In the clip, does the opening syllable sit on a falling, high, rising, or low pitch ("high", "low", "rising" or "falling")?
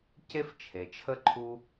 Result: high